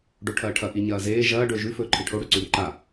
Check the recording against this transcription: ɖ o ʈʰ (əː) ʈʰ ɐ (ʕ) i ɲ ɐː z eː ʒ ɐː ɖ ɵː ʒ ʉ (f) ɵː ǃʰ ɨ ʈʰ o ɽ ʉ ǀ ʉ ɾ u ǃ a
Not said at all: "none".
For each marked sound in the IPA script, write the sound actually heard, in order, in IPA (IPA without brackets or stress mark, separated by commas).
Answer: ɐː, ʔ, f